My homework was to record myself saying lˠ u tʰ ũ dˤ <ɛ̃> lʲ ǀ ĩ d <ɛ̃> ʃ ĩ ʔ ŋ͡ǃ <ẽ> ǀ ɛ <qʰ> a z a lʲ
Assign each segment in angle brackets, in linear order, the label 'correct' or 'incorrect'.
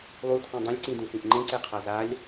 correct, incorrect: ẽ, correct, correct

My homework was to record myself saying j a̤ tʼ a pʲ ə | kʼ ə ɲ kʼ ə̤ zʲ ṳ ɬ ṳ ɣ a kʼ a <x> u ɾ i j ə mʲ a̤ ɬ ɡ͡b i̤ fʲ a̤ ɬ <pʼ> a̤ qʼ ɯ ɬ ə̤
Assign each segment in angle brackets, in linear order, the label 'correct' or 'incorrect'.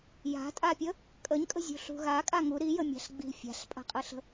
incorrect: ŋ, correct

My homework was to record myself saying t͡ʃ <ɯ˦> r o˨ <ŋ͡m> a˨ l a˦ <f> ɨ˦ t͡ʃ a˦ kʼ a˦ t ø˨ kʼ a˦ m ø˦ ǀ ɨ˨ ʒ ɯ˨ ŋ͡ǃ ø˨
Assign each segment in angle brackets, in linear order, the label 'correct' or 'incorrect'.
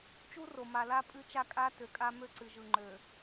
incorrect: u˦, incorrect: m, incorrect: pʼ

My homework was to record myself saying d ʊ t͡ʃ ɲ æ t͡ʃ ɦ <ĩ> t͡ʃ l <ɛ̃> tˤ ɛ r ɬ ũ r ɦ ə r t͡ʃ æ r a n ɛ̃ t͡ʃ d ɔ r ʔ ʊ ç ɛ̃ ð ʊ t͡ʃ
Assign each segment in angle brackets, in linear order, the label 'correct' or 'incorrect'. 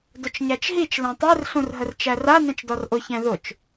incorrect: i, correct

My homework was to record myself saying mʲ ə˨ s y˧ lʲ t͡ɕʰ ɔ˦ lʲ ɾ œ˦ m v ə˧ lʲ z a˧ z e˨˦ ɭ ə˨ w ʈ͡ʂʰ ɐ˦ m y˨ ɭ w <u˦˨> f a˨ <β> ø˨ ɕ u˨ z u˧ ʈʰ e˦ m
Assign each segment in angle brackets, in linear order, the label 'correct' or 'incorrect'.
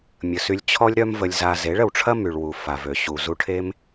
incorrect: u˨, incorrect: v

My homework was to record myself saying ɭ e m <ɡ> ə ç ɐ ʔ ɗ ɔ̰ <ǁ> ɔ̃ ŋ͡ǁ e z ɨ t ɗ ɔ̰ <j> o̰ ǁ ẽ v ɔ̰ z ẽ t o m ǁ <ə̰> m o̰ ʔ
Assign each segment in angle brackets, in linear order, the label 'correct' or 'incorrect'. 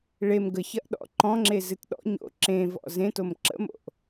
correct, incorrect: ǃ, incorrect: ɲ, correct

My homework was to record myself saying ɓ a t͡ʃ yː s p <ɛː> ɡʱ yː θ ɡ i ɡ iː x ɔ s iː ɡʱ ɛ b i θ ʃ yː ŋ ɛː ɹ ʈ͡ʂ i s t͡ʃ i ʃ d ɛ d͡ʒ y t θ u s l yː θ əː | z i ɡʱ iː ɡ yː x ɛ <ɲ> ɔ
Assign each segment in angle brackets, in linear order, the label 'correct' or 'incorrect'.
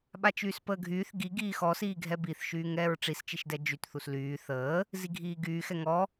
incorrect: əː, incorrect: ŋ

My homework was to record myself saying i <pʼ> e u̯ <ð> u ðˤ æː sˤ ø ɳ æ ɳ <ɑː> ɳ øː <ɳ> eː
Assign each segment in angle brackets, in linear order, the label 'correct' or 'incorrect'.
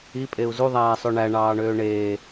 correct, incorrect: z, correct, correct

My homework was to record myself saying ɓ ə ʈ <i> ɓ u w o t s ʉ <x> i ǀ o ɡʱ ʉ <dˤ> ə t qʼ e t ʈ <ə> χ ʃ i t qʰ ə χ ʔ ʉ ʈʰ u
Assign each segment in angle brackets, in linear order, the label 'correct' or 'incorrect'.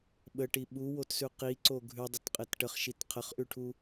correct, incorrect: q, correct, correct

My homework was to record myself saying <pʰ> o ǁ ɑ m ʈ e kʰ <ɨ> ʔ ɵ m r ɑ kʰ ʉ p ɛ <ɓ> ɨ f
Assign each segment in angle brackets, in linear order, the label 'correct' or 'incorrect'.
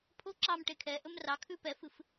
correct, incorrect: ɛ, incorrect: f

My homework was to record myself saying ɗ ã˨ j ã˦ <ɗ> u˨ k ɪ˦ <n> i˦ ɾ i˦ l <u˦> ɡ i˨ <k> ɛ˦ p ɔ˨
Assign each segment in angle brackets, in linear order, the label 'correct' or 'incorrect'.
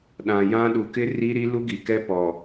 correct, incorrect: r, correct, correct

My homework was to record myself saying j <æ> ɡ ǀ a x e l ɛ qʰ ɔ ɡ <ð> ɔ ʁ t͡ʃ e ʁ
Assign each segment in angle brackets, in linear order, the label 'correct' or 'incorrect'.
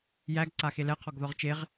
correct, correct

